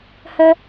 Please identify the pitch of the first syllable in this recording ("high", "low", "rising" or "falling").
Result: high